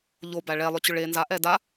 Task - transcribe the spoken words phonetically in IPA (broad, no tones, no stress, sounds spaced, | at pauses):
ʎ o b æ ɭ ɛ lˠ ʏ t͡ɕ ʏ ɭ e n z a ʔ ɛ d a